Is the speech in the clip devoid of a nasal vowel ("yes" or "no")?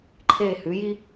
yes